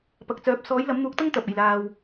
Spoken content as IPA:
p ɐ˨ k̚ t͡s œː˨˥ p̚ s ɔː˨˥ j l ɐ˨˥ m n̪ uː˨˥ k̚ t̪ ɐ˥ ŋ t̪ ɐ˨ p̚ e˨˩ j l aː˨ w

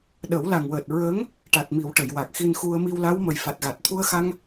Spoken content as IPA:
ɗ ə˨˩˦ w l a˨˩ ŋ w əː˨˩ t̚ ɹ ə˧˥ ŋ | ʈ a˨˩ t̚ m i˨˩˨ w ʈ ə˨˩˨ j w a˨˩ k̚ x i˧ n x u˧ ə̯ m i˧ w l a˧˥ w m ə˨˩ j f a˨˩ t̚ ɣ a˨˩ t̚ t̪ʰ u˧ ə̯ x a˧ ŋ

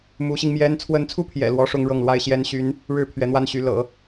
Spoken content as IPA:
m u˧˥ ɕ i˧ ŋ m j ɛ˥ n t͡sʰ w ə˧˥ n t͡sʰ u˥˩ pʰ j ɛ̰˨˩ l w ɔ˥ ʂ ʊ˥ ŋ ɻ ɤ˥˩ ŋ l w a˥ ɪ̯ ɕ j ɛ˧˥ n ɕ y˧˥ n | ɻ ɻ̩˥˩ pʰ ɥ ɛ˧˥ n̪ w a˥ n ɕ y˧˥ l ɤ̰˨˩˦

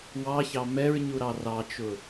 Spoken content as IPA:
w ɑ ç ɑ m ɛ ɹ ɲ u ɾ ɑ r ɑ t͡ʃ ʊ

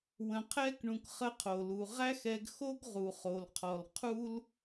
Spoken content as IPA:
w ə̃˨ qʰ ɛ˧ k ɳ ũ˨ k χ ə˧ qʰ o˨ l u˨ ʁ æ˦ x ɛ˧ ɡ x o˦ ɡ ʁ u˨ χ o˨ l qʰ ɔ˨ l qʰ u˦ l

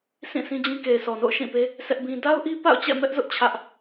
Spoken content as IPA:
s ĩ˦˨ s ĩ˦ d͡ʑ ĩ˦ k e˨ ɪ̯ s ɔ˨ n o̰˦˨ ʊ̯ ʃ ĩ˦˨ p e˦ | sʰ ɛ˦ ʔ b ĩ˦ d a˦ ʊ̯ ʔ i˦ p a̰˦˨ ʊ̯ t͡ɕ ɛ̰˦˨ m ɛ˦ ʔ z ʊ˦ ʔ t͡ɕʰ ä˦ ʔ

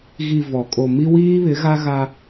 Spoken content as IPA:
ɣ i˨ v ɔ˨ kʼ o˨ m i˦ w iː˦ β ɪ˨˦ ɣ a˦ ɣ a˦

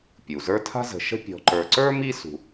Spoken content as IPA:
pʲ u˩ z ə˞˥ tʰ a̤˥ z ə̤˨ ʃ ə̤˥ pʲ ɔ̤˨ ǃ ə˞˨ ǀ ə˞˥ m i˥ s ṳ˨

